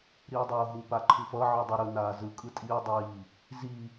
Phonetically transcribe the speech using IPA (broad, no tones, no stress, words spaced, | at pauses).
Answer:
ɾiːdˤoːɦu paǃʰɯfʌ ʕɯdˤʌɾɯ naːzɯ kʼɯtʼiː dˤiː | zi